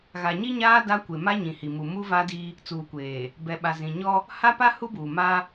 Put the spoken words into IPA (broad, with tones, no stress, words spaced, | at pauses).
ɣa˨ɲi˦ɲaː˦ da˦kʷe˨ ma˦ɲĩ˨hi˨mu˨ mu˦va˦di˦ | t͡suː˨kʷeː˨ | bɛ˨ ɓa˨zĩ˨ ɲɔ˦ | ha˦pa˦ hu˦buː˨ ma˦